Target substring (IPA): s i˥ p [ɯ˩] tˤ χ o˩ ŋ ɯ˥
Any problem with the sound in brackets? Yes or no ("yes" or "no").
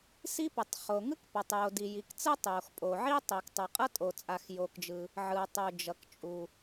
no